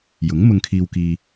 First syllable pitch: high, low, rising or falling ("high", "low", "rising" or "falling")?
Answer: rising